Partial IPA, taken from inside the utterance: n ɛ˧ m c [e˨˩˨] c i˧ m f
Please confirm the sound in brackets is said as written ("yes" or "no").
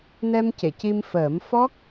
yes